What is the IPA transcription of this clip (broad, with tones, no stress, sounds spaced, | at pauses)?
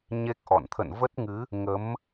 ɲ e˦˥ k̚ ʔ ɔ̰˧˨ n t̪ʰ ə̰˧˨ n v ə˦˥ t̚ ŋ ɨ˨˦ | ŋ ə˨˦ m